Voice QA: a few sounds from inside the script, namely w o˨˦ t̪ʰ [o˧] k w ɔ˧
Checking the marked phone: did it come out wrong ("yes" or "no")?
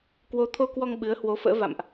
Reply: no